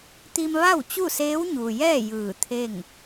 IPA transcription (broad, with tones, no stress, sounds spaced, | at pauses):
t̪ i˧ m ʋ a˥˨ w t͡ɕ u˥˨ s eː˧˥ w ɲ uː˩ j ɛː˥˨ j ɯː˧˩ t̪ʰ e˥˨ ŋ